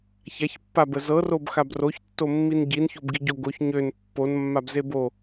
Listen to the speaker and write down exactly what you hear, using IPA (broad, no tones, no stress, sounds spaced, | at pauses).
ç a ç pː a b ə z ɤ r o b x a b r o ç tː o mː i n ɟ i n ç o b ɡ i ɟ o ɡ o ç ɲ ø n pː o n mː a b z e b o